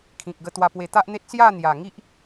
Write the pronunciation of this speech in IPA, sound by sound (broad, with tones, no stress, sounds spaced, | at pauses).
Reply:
kʰ ĩ˨ k̚ ɡ ə˧ t̪ w a˨˩ p w e˨˩ t̪ a˦ ʔ n̪ e˦ t̚ s j a˥˧ n̪ j a˨˩ ŋ i˦ ʔ